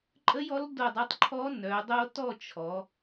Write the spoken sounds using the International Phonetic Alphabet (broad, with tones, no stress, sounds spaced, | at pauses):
ǃʼ ə˦˥ j ɔ˦˥ l d o˥˨ dˤ u˦˥ tˤ ǃʰ ɔ˦˥ n œ˩˧ dˤ o˦˥ t ɔ˥˨ t͡ʃʰ ɔ˩˧